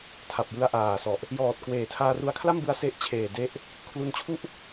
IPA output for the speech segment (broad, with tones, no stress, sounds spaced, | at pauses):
tʰ a˨˩ p̚ j ɯ˧ a̯ ʔ aː˨˩ s ɔ˨˩ ʔ | j ɔː˨˩ t̚ k w eː˨˩ tʰ aː˧ r u˧ a̯ kʰ l a˥˩ m b ɯ˦˥ a̯ s e˦˥ ʔ t͡ɕʰ eː˨˩ d e˦˥ ʔ | kʰ l u˧ n t͡ɕʰ u˥˩ ʔ